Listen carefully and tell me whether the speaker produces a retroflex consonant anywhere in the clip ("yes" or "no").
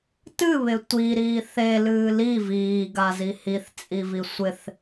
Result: no